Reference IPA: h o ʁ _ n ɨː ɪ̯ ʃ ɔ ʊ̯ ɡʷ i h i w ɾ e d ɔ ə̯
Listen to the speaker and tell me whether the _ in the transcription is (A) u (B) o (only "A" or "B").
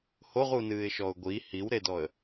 A